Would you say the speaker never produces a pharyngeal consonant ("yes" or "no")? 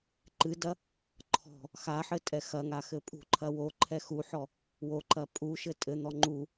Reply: no